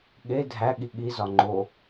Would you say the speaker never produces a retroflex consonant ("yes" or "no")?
yes